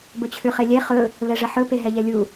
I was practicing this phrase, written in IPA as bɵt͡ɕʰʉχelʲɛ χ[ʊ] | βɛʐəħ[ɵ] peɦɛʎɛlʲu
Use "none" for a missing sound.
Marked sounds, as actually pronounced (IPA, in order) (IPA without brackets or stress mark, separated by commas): ɵ, ɵ